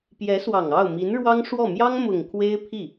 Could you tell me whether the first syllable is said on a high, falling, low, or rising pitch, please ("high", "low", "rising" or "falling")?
rising